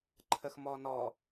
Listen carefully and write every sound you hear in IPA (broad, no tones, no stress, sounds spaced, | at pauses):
ǃʰ ə x m ɔ n ɔ